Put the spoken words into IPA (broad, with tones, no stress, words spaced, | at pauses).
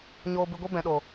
ɲoː˧bɨ˧ɡʷi˦ bɛ̃˨ɗo˨